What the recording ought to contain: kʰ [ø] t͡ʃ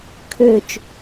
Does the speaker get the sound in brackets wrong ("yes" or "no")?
no